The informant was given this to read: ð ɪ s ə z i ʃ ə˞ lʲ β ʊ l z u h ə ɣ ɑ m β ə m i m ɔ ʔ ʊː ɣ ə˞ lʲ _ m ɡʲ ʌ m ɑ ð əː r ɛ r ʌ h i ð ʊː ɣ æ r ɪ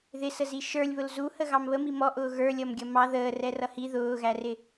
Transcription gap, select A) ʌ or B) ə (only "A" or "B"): A